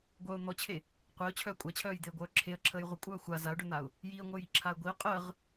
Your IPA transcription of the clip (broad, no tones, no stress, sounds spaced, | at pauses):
ɡʷ œ ʊ̯ n̪ ɔ t͡ɕʰ e | qʷ e ʊ̯ t͡ɕʰ œː kʷʼ a t͡ɕʰ œː j d̪ e ə̯ ɡʷ œː ǁʰ e ə̯ ǁʰ əː j ʁʷ ə kʷʼ œː xʷ a z a ʊ̯ ɖ œ n̪ a ʊ̯ | j i ə̯ ŋʷ œ j i ǁʰ a ə̯ ɡʷ i ʊ̯ qʼ əː ʁ